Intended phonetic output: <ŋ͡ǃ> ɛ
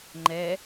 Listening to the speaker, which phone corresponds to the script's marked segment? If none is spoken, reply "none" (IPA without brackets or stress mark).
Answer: ŋ͡ǃ